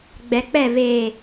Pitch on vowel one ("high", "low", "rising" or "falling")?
low